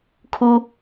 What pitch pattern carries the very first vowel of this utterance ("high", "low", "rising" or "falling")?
high